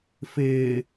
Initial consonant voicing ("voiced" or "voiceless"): voiceless